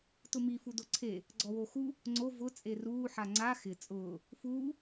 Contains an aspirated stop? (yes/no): yes